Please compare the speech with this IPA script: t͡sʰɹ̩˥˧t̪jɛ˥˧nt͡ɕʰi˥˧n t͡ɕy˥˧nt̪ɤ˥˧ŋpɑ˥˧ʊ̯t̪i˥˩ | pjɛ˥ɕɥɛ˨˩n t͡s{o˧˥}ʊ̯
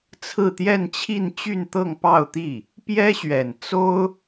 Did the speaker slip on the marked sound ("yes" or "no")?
yes